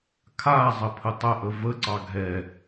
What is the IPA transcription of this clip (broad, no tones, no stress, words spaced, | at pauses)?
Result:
kʰazˤə pʰətˤəʔə vəǀɑ ɡʱɛ